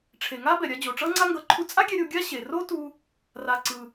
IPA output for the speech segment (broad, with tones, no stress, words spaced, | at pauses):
ʈ͡ʂʰe˩ ŋa˥bɛ˩ɾʲa˧ d͡ʑo˩ʈ͡ʂʌ˥ŋ͡ǀa˥ŋɡʌ˧ ǃʰu˧t͡sʼa˥ɡʲɛ˧ ɾʲo˧ɡʲa˥ ɕe˩ro˥ tu˧ | ra˩ǀɯ˩